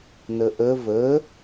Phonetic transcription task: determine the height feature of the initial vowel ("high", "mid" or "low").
mid